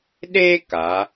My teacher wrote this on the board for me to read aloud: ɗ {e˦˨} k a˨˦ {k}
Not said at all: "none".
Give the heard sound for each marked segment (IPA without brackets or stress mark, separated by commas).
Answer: e˦, none